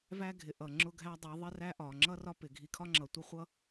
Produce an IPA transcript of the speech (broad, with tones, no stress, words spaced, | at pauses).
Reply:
væ˦ɡʱɪ˨ ʔʌ˨ ŋ͡ǁʊ˦ɡʱæ˦dˤi˨˦ ðˤɪ˦ræ˦ ʔɒ˨ ŋ͡ǁʌ˦ rɒ˦pɪ˨ɡʱi˧ kʰɒ˦ŋ͡ǁʌ˨tʷʌ˦ χʷʌ˦